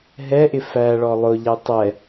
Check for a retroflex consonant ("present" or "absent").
present